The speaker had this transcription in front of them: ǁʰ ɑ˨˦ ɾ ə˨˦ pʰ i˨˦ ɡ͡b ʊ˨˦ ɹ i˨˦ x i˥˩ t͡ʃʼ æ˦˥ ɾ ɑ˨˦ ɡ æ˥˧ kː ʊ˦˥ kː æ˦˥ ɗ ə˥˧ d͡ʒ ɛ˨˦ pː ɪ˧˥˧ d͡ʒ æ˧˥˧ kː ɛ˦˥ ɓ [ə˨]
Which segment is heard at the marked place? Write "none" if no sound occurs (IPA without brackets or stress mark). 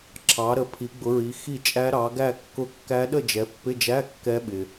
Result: ɪ˨